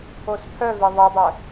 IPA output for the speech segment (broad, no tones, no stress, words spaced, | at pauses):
ospʰœve ðˤedˤœ